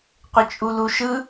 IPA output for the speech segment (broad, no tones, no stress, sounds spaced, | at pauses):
qʷ ɪ t͡ʃʼ u l u ʃ ɯ